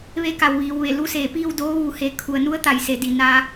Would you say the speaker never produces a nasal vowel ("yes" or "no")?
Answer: yes